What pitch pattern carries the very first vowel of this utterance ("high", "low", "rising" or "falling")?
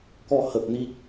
falling